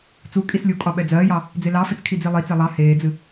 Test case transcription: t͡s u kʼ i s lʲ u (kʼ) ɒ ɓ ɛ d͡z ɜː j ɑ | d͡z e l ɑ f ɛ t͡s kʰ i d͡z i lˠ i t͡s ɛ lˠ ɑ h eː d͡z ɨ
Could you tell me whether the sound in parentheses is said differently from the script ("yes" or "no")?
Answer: no